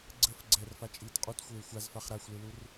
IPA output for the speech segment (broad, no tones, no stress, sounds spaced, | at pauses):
ɡ͡ǀ ə f ɡ͡ǀ ɛː r f a t͡ʃʼ iː t qʼ u t xʷ eː xʷ a z f a χ ɾ a xʷ l ɨ l u r